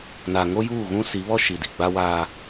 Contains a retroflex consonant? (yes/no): no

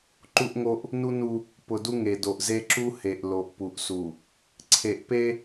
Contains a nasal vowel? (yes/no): no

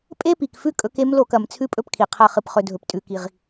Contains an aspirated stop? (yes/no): yes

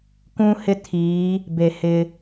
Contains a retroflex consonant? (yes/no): no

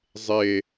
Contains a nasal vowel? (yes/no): no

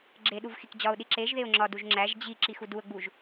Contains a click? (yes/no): yes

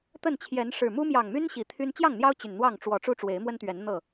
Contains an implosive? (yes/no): no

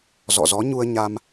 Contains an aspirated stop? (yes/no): no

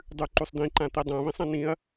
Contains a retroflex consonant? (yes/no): no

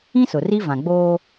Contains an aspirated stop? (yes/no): no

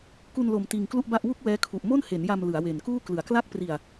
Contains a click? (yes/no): no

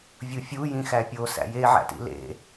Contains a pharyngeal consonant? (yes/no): yes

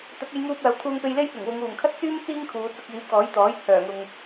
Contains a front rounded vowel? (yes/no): yes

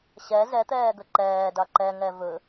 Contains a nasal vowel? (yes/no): no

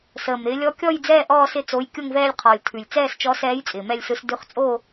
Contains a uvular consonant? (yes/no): yes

